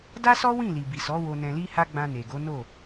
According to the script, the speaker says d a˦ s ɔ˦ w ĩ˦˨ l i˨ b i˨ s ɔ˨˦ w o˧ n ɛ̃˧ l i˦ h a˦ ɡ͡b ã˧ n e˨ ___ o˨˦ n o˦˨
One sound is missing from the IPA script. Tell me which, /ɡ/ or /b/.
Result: ɡ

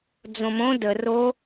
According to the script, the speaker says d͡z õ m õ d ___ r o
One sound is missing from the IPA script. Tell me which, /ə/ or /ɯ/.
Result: ə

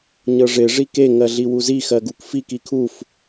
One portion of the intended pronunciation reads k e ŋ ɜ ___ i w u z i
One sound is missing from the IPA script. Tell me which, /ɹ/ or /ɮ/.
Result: ɮ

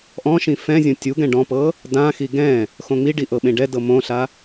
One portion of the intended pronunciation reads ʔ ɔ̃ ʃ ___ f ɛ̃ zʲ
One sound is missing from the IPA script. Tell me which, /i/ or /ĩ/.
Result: ĩ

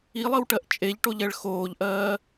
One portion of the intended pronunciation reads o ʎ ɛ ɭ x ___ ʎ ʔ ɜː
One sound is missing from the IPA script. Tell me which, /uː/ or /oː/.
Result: oː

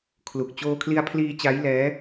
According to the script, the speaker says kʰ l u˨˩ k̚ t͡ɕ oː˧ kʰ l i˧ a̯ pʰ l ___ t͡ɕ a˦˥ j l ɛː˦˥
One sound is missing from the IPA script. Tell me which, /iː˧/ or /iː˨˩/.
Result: iː˧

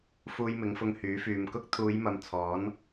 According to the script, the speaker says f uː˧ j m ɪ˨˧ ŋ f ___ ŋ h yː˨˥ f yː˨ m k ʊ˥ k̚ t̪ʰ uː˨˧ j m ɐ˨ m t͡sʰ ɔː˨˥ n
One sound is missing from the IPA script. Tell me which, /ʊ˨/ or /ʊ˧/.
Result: ʊ˧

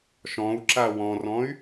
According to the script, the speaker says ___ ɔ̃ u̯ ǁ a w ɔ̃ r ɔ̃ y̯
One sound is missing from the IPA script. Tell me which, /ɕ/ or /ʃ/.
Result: ʃ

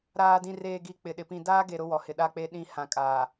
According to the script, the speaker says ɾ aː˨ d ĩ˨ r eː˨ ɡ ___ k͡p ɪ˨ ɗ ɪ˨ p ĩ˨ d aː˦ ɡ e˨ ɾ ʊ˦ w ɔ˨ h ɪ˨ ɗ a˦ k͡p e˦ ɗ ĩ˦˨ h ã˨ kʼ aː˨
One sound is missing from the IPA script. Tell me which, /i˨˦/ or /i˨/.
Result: i˨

